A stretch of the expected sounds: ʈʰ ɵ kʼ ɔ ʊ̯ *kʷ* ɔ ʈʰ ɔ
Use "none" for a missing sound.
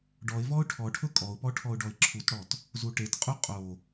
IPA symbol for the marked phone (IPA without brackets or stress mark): p